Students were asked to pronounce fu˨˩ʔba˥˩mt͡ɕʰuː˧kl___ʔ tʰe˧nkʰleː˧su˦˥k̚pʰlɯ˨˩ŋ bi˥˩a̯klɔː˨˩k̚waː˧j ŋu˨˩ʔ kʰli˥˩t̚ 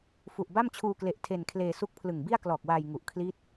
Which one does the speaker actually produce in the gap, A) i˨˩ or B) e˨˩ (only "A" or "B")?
B